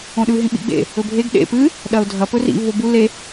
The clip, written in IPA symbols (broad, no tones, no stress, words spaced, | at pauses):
õɗʉ ɦĩɓḭɡ͡bḛ | ɵbʱeɡ ɗḛ pɨ | ɗɐʊ̯dʱɐ pɵrḭ vobu le